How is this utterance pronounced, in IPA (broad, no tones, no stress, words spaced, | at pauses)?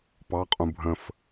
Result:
pɑqʼũ bʱə̃f